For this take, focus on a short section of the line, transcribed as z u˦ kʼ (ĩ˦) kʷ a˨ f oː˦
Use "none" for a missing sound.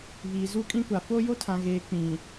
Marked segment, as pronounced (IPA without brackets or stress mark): ĩ˦